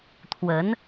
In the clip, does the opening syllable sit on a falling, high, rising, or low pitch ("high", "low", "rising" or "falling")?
rising